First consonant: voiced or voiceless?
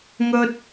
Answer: voiced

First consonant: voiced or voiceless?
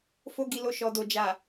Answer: voiceless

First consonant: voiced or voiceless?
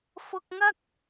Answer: voiceless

